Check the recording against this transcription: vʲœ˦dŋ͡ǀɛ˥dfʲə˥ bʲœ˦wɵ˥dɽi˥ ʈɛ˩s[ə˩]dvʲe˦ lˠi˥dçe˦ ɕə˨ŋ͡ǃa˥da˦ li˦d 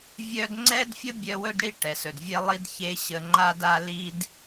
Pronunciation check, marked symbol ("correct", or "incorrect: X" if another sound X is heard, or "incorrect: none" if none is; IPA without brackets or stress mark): incorrect: ɵ˩